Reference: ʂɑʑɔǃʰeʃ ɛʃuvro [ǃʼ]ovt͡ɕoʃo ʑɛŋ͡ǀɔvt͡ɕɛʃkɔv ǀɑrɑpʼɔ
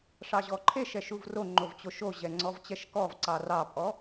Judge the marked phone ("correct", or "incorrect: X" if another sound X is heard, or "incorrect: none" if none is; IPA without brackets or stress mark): incorrect: ŋ͡ǃ